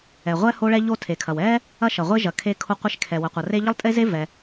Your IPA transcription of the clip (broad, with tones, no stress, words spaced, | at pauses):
ɛ˩ ʁʷɛ˥ ho˥ɭɛ˥ ʎo˥tʰe˩kʰɐ˩w ɛ˥ | ɐ˥ʃɐ˩ʁʷe˥ʒɐ˩ kʰe˥kʰo˥qʷe˥ʃ kʰɛ˩wə˩qʷɐ˩re˥ ʎə˥lˠtʼe˥ze˥ vɛ˩